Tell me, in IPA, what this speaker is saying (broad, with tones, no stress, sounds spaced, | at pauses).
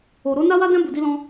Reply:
o˨ ɾ o˨˦ n a˦ w a˦ d ɛ̃˦ b u˧ d i˦ l ɔ̃˦